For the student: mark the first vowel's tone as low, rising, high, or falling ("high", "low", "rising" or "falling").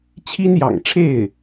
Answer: high